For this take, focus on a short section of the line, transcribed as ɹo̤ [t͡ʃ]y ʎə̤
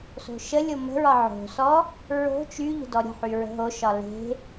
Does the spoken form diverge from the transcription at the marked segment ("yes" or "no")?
no